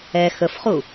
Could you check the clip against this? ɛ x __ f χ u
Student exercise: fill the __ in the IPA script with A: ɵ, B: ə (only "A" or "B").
B